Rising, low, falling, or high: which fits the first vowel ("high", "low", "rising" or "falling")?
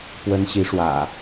high